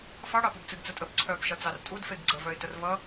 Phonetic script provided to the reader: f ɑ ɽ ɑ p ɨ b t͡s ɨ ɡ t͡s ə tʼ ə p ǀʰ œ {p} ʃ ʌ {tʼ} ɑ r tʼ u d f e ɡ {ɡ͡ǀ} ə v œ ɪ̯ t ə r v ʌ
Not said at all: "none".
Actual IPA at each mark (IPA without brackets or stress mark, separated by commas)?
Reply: p, t͡s, ɡ͡ǀ